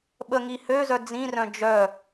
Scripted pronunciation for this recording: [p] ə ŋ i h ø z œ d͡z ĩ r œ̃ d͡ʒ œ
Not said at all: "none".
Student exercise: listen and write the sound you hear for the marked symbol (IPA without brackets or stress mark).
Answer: ɓ